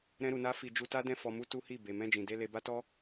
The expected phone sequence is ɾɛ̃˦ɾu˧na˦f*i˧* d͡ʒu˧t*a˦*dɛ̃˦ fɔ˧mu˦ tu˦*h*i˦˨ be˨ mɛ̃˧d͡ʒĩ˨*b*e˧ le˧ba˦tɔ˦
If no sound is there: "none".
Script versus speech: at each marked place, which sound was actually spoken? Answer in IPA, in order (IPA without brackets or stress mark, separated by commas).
i˧, a˦, h, d